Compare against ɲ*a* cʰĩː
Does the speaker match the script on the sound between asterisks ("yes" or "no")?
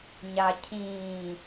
yes